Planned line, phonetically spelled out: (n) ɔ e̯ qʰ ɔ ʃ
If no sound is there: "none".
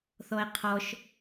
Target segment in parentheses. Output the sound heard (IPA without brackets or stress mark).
θ